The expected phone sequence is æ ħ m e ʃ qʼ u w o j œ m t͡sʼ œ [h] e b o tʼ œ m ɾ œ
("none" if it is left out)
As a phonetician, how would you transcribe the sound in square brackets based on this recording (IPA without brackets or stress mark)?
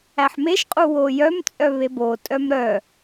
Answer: β